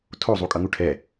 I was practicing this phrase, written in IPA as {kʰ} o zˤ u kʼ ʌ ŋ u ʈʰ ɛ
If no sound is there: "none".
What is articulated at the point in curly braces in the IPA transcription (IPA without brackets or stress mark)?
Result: tʰ